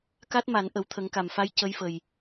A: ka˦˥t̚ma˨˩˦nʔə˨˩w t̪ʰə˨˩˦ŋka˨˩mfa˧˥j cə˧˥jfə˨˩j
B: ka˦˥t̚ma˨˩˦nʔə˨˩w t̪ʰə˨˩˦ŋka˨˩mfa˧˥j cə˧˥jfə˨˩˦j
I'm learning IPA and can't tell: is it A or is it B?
A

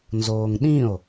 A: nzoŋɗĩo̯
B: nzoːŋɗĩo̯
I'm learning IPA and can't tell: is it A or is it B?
B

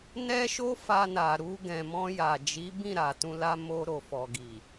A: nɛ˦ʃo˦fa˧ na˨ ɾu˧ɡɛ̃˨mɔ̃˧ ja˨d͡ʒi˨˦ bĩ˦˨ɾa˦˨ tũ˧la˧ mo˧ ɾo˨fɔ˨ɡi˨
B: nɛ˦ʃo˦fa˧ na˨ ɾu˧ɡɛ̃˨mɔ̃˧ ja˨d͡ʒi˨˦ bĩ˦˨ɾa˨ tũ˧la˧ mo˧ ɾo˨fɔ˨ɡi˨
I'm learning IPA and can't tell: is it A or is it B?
B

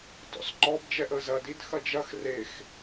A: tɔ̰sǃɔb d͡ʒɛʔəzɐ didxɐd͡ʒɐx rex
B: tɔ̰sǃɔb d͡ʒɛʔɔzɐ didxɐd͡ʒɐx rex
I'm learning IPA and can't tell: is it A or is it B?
A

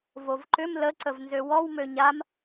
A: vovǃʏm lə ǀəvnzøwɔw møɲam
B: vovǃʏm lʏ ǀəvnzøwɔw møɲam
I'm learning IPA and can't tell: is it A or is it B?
A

